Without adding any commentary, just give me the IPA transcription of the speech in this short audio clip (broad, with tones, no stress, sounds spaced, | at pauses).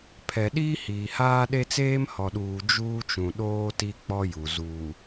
pʰ ɛ˨ ɗ iː˦ h iː˨ h aː˦ ɗ e˦ t͡s eː˦ m h ɔ˨ ɗ uː˨ d͡ʒ uː˦ t͡ʃ ũ˨ ɗ oː˦ t i˦ k͡p ɔ˦ j u˨ z uː˨